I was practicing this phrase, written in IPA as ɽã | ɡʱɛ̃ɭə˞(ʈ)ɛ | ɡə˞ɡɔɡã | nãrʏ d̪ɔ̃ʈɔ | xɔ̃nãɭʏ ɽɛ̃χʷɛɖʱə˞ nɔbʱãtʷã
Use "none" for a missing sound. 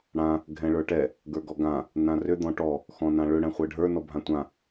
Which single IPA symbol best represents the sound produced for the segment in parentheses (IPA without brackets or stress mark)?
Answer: ʈ